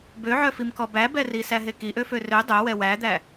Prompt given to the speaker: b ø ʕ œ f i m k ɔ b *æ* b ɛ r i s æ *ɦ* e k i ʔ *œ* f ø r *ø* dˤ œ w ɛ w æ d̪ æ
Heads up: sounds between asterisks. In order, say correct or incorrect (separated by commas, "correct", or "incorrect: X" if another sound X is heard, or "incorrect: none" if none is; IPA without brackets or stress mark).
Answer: correct, correct, incorrect: ø, correct